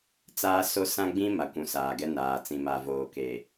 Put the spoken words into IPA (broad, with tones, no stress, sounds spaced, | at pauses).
t͡s aː˦ s o˦ s ã˦ ɡ͡b ĩ˦ m a˨ kʷ ũ˨˦ s aː˨ ɡ ɛ˦ n aː˨ t͡s ĩ˨ m a˨ v oː˨ k e˨